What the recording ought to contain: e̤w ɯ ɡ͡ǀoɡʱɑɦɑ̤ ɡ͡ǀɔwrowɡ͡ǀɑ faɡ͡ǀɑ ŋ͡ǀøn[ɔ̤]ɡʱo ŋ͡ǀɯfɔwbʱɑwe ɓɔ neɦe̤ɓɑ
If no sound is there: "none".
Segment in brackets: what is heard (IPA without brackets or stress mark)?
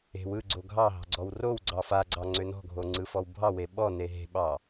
ɔ̤